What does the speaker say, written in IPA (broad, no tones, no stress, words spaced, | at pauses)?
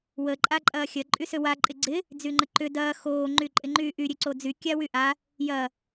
wə ǃʼaǃʼɐːxʲɐ ǃʼysøwa ǃʼɪɡ͡ǀɪ | d͡zyŋ͡ǃəǃʏ dɐː xoː ŋ͡ǃyǃʼɪŋ͡ǃyːʔy ɾʲøǀod͡zy kʲawyʔa | jɐ